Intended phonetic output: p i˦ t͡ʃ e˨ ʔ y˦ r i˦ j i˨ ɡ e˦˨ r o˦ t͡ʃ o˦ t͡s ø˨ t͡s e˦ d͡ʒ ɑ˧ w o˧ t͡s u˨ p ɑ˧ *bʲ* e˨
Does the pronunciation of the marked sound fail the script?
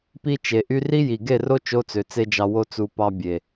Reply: no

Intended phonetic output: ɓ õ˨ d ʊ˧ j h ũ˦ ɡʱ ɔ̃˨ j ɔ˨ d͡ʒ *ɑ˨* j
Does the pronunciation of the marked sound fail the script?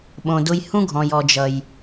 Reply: yes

